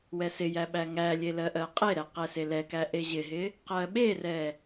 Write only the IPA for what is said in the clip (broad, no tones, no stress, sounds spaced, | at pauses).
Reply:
w ɛ s ɪ j æ ɓ æ ŋ æ lʲ e l ɜ ʔ ɜ qʼ e ɾ ɛ q ɛ s e l ɛ k æ ʔ e ʑ ɪ ɦ ɪ | q ɜ ɓ e r ɛ